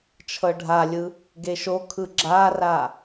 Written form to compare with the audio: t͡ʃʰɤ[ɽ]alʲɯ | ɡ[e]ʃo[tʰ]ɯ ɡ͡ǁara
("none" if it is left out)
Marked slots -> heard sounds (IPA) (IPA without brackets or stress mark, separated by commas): ɖʱ, e, kʰ